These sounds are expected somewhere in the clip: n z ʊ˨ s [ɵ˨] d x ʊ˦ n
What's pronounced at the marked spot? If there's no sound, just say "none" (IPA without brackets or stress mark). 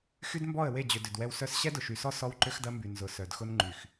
œ˨